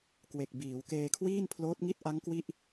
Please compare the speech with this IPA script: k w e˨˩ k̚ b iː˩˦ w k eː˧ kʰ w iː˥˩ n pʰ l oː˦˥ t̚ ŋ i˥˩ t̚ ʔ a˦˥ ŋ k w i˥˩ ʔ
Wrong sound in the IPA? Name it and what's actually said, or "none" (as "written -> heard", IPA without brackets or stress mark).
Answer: none